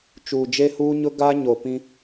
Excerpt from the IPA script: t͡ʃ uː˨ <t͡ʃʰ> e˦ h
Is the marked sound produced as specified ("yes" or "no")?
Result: no